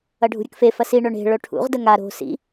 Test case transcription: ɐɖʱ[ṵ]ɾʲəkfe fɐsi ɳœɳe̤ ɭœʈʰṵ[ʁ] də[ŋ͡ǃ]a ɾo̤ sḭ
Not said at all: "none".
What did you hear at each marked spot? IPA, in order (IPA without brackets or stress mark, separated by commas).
ṳ, ʁ, ŋ